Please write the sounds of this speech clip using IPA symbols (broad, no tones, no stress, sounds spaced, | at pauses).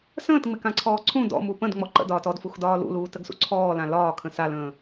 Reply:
s ə̃ː t ŋ͡m ɪ k ã ǀʰ ɔː ǀʰ ũ d ɔ̰ m u p ə̃ d ŋ͡m ɔ ǃ ə̰ d ɒː t ɔ d f u x d ɒː l ṵ l uː t ə ɡ s ṵ ǀʰ ɔː l ã l ɒː kʰ ə̃ s a l ə̃ː